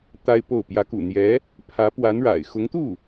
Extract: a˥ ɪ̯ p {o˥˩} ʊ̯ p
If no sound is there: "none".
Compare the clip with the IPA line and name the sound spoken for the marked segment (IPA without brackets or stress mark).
o˥˩